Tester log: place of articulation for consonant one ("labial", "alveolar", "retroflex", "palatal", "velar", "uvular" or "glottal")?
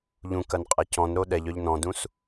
palatal